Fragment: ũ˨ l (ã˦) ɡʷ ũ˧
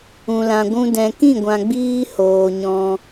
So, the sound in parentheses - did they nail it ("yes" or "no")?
no